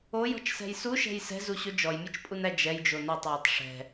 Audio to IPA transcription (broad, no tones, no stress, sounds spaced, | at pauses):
o j ɔ̤ t͡ʃ s ɛ̤ j s u ʃ ɛ̤ j s ɛ̤ z u ɕ o d͡ʒ ɔ j mʲ ɯ t͡ʃ pʼ u n æ d͡ʒ ɛ j d͡ʒ o n o tˤ j o tˤ ʂ ɛ̤